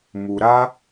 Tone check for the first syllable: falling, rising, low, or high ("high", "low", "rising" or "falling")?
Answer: low